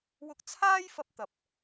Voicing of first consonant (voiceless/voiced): voiced